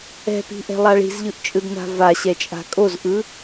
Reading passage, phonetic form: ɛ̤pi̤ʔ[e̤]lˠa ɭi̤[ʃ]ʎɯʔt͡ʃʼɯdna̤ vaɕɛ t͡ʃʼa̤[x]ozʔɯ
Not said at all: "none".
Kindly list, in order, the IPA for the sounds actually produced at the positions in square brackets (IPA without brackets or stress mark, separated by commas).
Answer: ɛ̤, z, kʼ